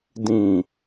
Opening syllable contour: low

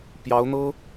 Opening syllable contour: rising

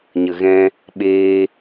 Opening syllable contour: low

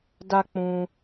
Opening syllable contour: high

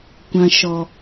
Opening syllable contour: high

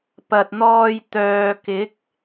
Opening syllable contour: low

